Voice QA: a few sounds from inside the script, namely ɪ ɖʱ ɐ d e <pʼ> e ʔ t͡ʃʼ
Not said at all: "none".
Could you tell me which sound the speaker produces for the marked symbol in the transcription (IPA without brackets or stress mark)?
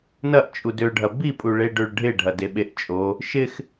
ɓ